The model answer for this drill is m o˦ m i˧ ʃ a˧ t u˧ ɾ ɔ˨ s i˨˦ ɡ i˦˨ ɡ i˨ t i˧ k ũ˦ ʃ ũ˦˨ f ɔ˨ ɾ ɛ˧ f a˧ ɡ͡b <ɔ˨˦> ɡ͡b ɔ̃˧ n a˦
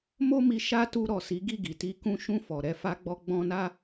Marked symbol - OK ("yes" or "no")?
no